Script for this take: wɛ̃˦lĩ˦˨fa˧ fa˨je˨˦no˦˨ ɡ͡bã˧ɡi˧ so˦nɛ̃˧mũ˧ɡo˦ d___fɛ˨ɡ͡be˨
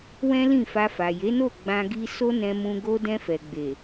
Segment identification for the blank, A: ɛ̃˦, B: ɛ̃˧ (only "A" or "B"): B